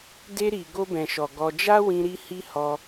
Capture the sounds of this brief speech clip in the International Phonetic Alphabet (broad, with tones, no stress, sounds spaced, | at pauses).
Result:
d e˧ ɾ i˨ ɡ o˧ b ɛ̃˨ ʃ ɔ˨ ɡ ɔ˧ d͡ʒ a˦ w ĩ˧ ɾ i˧ h i˦ h ɔ˧